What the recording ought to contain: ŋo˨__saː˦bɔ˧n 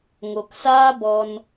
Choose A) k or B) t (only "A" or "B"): A